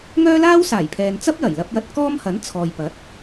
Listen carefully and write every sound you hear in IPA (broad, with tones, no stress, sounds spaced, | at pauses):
ŋ œː˥ l aː˥ w s aː˨˩ j pʰ ɛː˨ n t͡s ɐ˥ p̚ j ɐ˨˩ j l ɐ˧ p̚ j ɐ˧ t̚ k ɔː˥ m h ɐ˨˥ n t͡sʰ ɔː˨ j p ɐ˨˥ t̚